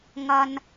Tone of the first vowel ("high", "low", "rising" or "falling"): high